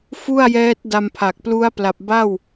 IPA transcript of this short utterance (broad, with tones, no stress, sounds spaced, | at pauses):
f u˥˩ a̯ j ɛː˦˥ t̚ d a˧ m pʰ a˨˩ k̚ p l u˦˥ a̯ p l a˨˩ p̚ b a˥˩ w